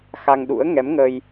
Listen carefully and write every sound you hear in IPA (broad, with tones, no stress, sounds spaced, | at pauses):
x a˧ ŋ ɗ ṵ˧˥ ə̯ ŋ ɛ˨˦ m ŋ ə˧ j